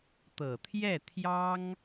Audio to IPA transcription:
t̪ ɤ˨˩ t̪ʰ j ɛ˥˩ t̪ʰ j ɑ˥ ŋ

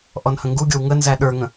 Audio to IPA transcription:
ʔ ɔ n h ə̃ ŋ ɡ u ɡʲ o w ŋ ə n z æ ɗ ə˞ ŋ ə̃

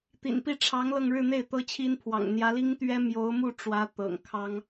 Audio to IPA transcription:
t̪ ḭ˨˩ n p i˥˩ ʈ͡ʂʰ ɑ˧˥ ŋ l ɤ˥˧ ŋ ɻ ɻ̩˥˧ n̪ e˥˩ ɪ̯ t̪ ɤ˥ t͡ɕʰ i˥ n pʰ w ɑ̰˨˩ ŋ n̪ j ä˧˥ l i˥ ŋ t̪ ɥ ɛ˥ m j o˧˥ ʊ̯ m u˥˩ ʈ͡ʂ w ä˧˥ t̪ ɤ̰˨˩ ŋ kʰ ɑ˥ ŋ

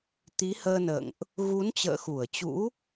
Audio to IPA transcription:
t̪ i˨˦ h əː˧ n ə̰ː˧˨ ŋ ʔ | ɣ u˨˦ n t͡ɕ ə̰ː˧˨ x u˧˩ ə̯ t͡ɕ ṵ˧˥

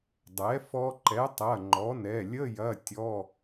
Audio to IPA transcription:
dˤ ɛ˩˥ f ɔ˧ ǃ ɛ˩˥ tˤ ɐ˩˧˩ ŋ͡ǃ ɔ˩˥ n ɛ˩˧˩ lʲ ə˧˥˧ j ɐ˧˥˧ tʲ ɔ˧˥˧

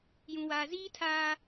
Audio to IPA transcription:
j ũ˨ w aː˨ z iː˦ tʰ aː˦

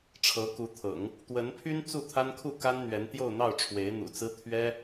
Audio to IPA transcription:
ʈ͡ʂʰ ɤ˧˥ k u˧˥ t̪ʰ ɤ̰˨˩˦ ŋ | t̪ w ə˧˥ n pʰ y˥ n t͡s u˥˩ t̪ʰ a˥ n kʰ u˥˩ k a˥ n n̪ ɥ ɛ˧˥ n t̪ j o˥˧ ʊ̯ n̪ ɑ˥˩ ʊ̯ ʈ͡ʂʰ w e˧˥ ɪ̯ n̪ ṵ˨˩ t͡s ɹ̩˥ t̪ʰ ɥ ɛ˥

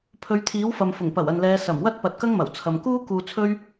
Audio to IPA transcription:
pʰ ɵ˨˧ ɥ t̪ʰ iː˨˥ w f ɐ˨ m f ʊ˨˩ ŋ p ɐ˨˩ w ɐ˨ n l ɛː˨˧ s ɐ˨˩ m w ɐ˥ t̚ p ɐ˨˥ t̚ k ɐ˥ ŋ m ɐ˨˩ w t͡sʰ ɐ˨ m k uː˥ k uː˧ t͡sʰ ɵ˥ ɥ

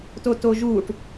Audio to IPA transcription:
t o t o ʒ uː ʈ

